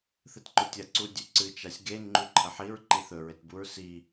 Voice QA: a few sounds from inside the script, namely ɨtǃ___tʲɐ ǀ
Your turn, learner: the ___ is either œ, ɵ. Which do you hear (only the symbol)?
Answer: ɵ